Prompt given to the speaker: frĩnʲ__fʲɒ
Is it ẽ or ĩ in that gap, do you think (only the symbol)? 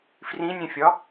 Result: ẽ